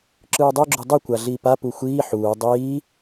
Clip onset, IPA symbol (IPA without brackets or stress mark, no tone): ǁ